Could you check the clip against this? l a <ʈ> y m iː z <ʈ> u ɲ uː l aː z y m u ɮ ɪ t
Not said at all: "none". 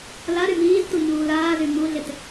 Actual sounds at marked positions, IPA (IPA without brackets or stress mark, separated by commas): ɾ, t